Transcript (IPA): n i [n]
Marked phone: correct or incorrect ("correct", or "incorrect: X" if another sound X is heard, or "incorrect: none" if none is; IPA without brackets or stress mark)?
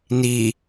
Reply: incorrect: none